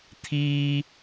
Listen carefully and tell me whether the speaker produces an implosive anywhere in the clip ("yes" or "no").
no